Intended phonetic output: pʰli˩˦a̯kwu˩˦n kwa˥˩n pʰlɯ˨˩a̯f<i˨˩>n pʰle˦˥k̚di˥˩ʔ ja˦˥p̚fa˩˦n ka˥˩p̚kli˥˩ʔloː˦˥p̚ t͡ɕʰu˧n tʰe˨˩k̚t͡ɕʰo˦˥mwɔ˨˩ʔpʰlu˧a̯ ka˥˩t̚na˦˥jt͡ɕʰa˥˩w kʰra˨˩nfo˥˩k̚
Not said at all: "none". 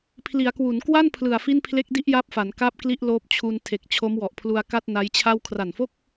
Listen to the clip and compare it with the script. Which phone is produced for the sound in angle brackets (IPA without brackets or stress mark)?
i˥˩